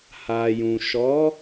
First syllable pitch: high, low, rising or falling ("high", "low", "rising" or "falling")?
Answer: low